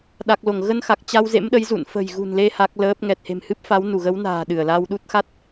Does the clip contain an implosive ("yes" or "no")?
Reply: yes